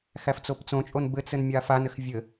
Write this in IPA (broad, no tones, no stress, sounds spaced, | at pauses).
x æ f t͡s o p t͡s õ t͡ʃʼ o n b ɘ t͡s ɘ n mʲ a f a n ɘ x vʲ ɘ